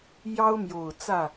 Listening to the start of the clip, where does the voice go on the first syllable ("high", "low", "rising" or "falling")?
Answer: high